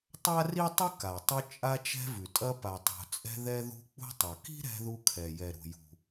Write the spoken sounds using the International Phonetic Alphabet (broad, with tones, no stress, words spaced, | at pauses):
tˤa˥ri˥tˤʉ˥ ka˩ tˤʉ˧ t͡ʃʼa˧t͡ʃɛ̤˧vʉ˩tʼɐ˧ pa˩tˤṳ˩t͡sʼɛ̤˧ ðɛ˧ðṳ˧ k͡pṳ˧tˤɐ˩ki̤˥ ɾɛ̤˧ ðu˧kʰɛ˩ jɛ˩ɾṳ˩ jṳ˩